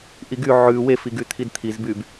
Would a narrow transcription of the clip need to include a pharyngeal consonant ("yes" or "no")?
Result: yes